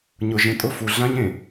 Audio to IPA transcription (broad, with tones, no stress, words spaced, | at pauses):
ɲʊ˨ʒẽ˨tʼʊ˦˨ fu˨ɮã˦ɲẽ˨